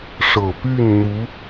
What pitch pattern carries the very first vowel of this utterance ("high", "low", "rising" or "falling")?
low